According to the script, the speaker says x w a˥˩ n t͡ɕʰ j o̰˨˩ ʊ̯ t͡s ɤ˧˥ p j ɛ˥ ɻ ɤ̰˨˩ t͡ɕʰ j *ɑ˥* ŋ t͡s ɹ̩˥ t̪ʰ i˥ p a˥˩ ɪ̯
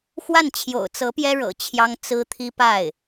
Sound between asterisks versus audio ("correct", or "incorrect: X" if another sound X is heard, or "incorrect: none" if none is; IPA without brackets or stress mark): correct